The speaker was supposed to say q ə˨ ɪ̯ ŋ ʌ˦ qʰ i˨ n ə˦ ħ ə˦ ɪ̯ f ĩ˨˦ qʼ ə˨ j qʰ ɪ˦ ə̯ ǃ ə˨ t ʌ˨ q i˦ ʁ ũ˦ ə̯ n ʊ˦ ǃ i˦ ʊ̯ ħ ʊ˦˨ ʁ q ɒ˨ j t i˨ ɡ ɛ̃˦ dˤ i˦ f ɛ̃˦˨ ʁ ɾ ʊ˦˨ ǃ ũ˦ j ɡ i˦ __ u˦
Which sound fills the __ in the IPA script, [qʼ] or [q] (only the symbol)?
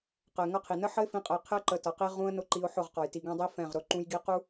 q